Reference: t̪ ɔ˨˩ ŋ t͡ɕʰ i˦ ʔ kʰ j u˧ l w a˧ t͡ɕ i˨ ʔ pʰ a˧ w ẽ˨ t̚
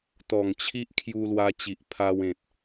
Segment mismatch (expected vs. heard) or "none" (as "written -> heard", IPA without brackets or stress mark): none